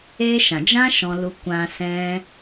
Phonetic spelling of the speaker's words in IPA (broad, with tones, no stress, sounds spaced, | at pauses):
eː˧ ʃ ã˨ d͡ʒ ã˦ ʃ ɔ̃˧ l u˧ kʷ ã˧ s ɛ̃˦